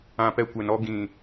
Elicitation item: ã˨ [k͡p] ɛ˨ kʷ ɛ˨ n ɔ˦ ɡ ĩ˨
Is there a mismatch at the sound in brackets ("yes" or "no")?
yes